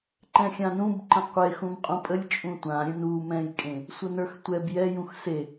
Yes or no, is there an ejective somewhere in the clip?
yes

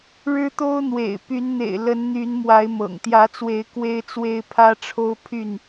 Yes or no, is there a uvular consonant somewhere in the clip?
no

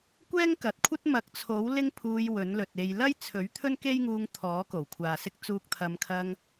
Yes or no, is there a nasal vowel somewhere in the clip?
no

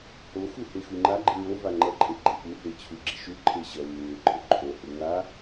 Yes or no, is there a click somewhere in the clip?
yes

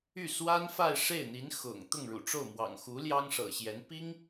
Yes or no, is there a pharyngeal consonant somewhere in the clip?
no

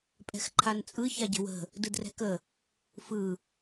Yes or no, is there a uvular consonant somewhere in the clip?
no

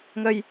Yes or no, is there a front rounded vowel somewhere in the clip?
no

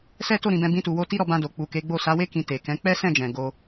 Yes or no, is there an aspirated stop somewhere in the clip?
no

